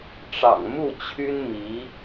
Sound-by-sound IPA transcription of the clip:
ʈ͡ʂ ɑ̰˨˩ ŋ m u˥˩ t͡ɕʰ y˥ n m i˧˥

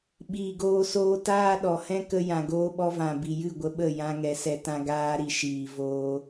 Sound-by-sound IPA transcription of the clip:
ɓ iː˨ ɡ oː˧ s oː˧ t aː˦ ɗ ɔ˨ h ɛ̃˦ k ə˧ j ã˨ ɡ oː˧ ɓ ɔ˧ v ã˨ b i˨ j ɨ˦˨ ɡʷ ə˧ ɓ ə˦˨ j ã˧ ŋ ɛ˨ s ɛ˧ t ã˧ ɡ aː˧ ɾ i˨ ʃ iː˨ v oː˧

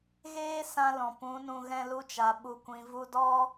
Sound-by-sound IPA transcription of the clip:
ɣ eː˦ s ã˧ l ɔ̃˨ p ũ˨˦ n ũ˧ ɣ ɛ̃˧ l u˧ t͡ʃ a˨ ɓ u˨ kʷ ĩ˨ v u˧ d ɔ˦

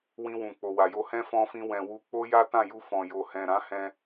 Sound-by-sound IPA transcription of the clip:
w ĩ˧ w ũ˨ k͡p o˨ w a˨ j o˧ h ɛ̃˦ f ɔ̃˧ f ĩ˧ w ɛ̃˨ w u˧ k͡p o˦ j a˦ t ã˦˨ j u˧ f ɔ̃˨ j o˨ h ɛ̃˨ ɾ ã˨˦ h ɛ̃˧

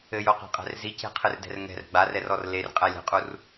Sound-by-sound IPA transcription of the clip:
ɘ j o q e̤ qʼ ɛ̤ r z i c e̤ qʰ ɨ r d ɛ̤ r ŋ ɛ̤ r ɡ͡b a r ɛ r ɔ r l e r qʼ ɛ lʲ ɛ̤ qʼ u r

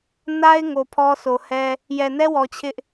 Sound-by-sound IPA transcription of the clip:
n a˦ ɪ̯ ŋ o˨ pʰ ɔ˦ sʰ o˨ h ɛ˦ | j ɛ˨ n ɛ˦ w ɔ˨ t͡ɕʰ ɪ˦ ʔ

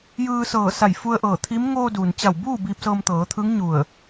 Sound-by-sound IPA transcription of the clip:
j ɯː˧ s ɤː˧˩ s a˧˩ j f u˧ ə̯ ʔ ɤː˧˩ t̪ʰ iː˧˥ m ŋ oː˧ d uː˩ n t͡ɕ a˧˩ w b uː˥˨ b iː˧ p̚ s ɤː˧ m t̪ ɤː˩˧ t̪ʰ ɯː˧˥ ŋ ɲ u˧˩ ə̯

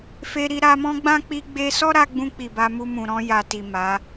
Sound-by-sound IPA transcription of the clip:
f e˧ ɾ i˧ ɾ a˧ m ɔ̃˦ ɡ͡b ã˦ k͡p i˧ ɡ͡b e˧ s ɔ˦ ɾ a˧ ɡ͡b ũ˧ k͡p i˨ b a˧ m u˧ m ũ˨ ɾ ɔ̃˧ j a˨ t i˨ m a˨˦

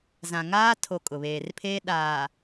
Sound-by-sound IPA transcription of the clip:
z ã˨ ŋ aː˦ tʰ o˨ kʼ ʊ˨ β eː˨ r pʰ eː˦ ɗ aː˨

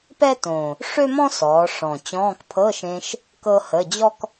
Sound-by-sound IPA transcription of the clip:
p ɛ˥ t õ˨˩ | ʂ ø˥ m ɔ̃˥ s ɔː˩˧ ʂ ɔ̃˨˩ t͡ɕ ɔ̃ː˧˥˧ k pʰ ɤ˧˥˧ ʃ ẽ˧ ʃ | k ɤ˥ h ə˧˥˧ d͡ʑ ɔ˥ k

